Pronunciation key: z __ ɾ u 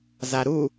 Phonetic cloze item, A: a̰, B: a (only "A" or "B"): B